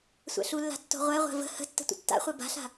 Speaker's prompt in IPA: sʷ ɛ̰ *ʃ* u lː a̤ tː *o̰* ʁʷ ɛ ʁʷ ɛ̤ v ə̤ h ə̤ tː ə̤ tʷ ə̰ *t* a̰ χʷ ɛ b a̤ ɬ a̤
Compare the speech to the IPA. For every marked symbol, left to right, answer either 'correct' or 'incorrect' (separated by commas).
incorrect, incorrect, incorrect